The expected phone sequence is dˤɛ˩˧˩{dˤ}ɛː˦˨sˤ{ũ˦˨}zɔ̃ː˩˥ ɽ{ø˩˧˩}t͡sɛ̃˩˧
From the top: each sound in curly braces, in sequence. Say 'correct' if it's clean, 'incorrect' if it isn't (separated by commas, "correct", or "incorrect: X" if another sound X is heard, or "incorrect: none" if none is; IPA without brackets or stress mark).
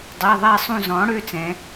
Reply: incorrect: ðˤ, correct, correct